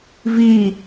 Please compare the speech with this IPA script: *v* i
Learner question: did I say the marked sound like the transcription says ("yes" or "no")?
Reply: yes